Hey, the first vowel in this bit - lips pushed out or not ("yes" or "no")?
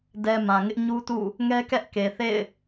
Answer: no